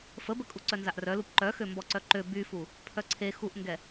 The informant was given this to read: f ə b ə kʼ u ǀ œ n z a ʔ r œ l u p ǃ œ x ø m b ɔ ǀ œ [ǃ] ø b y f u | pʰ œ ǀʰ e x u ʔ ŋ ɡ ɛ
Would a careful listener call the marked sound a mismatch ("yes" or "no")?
no